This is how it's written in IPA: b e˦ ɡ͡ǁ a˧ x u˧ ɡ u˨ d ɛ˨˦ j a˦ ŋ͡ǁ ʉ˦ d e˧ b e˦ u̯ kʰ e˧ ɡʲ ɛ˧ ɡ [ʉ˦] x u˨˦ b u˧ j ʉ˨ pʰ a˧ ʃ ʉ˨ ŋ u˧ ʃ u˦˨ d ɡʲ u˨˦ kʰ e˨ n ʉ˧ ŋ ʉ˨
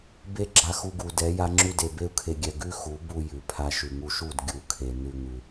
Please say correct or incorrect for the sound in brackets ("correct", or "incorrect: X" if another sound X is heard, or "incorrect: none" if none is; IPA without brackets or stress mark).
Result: correct